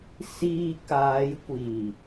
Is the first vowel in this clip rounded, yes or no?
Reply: no